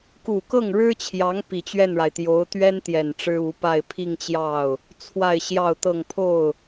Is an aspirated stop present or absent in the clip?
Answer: present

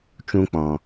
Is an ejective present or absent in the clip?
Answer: absent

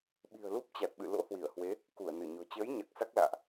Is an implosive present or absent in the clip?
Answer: present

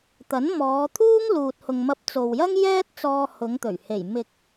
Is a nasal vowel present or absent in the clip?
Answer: absent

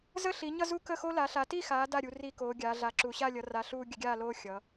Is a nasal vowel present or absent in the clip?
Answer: absent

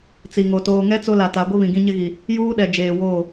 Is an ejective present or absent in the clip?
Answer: absent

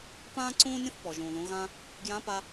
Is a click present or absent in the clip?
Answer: present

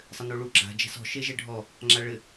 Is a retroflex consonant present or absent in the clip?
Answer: present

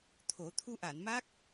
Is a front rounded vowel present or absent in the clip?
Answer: absent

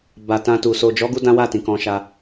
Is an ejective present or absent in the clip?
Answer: absent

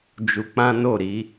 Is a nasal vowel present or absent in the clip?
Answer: present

